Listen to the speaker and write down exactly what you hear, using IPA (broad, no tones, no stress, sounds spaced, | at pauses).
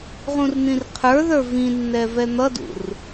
ʁ ũ r n̪ ĩ r qʰ ə˞ ð ə˞ v ĩ nː ɛ v ɛ n̪ ʌ d ṵ r